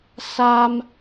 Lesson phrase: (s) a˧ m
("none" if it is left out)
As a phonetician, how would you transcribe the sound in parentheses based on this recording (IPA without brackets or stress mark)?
s